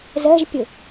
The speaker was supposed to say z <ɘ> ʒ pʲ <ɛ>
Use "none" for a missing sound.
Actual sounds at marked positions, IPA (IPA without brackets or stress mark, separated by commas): ɛ, ɘ